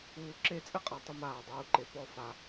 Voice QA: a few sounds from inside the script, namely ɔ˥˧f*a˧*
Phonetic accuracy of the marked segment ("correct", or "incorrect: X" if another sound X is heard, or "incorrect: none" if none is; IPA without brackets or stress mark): correct